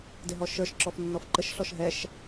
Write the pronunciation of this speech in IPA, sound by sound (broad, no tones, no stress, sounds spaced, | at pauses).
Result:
d ɪ ɦ ɔ ʃ ə˞ ʃ ǁ ɔ f nː ɔ f ǃ ə ʃ ɬ ɔ ʃ ɦ ɛ ʃ